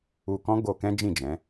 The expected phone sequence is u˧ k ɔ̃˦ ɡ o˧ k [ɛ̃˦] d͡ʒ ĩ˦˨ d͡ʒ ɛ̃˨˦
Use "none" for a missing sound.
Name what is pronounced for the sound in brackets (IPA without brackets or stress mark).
ɛ̃˦